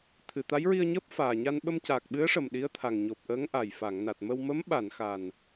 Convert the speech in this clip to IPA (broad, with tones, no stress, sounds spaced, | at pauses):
t̪ʰ ɨ˨˩˨ t̪ a˧˥ j ɹ i˧ ə̯ ɲ əː˦˥ p̚ f aː˨˩ ɲ a˧ n ɓ ə˧ m c aː˨˩ k̚ ɓ ɨ˧˥ ə̯ ʂ ə˨˩ m ɗ i˧˥ ə̯ t̪ʰ a˨˩ ŋ ɲ o˨˩ p̚ ʔ əː˧˥ ŋ ʔ a˨˩ j f a˨˩˨ ŋ n a˨˩ t̚ m ə˧ w m ə˧˥ m ɓ a˨˩˨ n x a˨˩ n